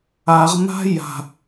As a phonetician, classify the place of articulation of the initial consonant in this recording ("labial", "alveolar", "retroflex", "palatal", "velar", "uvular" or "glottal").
uvular